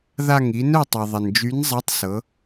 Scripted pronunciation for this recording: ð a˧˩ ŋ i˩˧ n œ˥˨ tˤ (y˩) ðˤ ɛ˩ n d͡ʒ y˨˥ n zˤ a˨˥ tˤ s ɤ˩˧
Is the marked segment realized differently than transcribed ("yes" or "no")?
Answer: yes